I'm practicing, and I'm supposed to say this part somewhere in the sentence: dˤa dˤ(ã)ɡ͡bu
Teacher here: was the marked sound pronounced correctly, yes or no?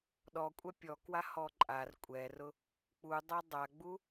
no